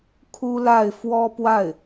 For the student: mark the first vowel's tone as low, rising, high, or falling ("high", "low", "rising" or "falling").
high